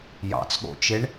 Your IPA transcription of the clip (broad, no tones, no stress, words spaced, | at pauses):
jɑ̰t͡sɠo̰t͡ʃeɳ